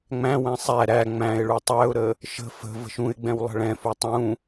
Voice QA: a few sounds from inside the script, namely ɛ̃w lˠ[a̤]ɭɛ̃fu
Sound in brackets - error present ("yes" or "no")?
yes